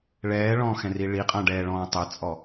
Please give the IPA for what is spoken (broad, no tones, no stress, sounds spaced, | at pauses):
ɭ ɛː ɭ ɔ̃ː x ɛ̃ r i ɭ i qʼ ã ɖ ɛː ɭ ɔ̃ː tˤ ɛ t͡sʼ ɔ